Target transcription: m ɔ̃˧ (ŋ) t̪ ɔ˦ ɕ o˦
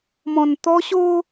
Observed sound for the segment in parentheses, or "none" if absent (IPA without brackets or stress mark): n